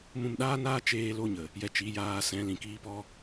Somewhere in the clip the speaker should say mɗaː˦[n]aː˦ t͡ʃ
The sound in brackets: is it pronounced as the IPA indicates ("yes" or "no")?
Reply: yes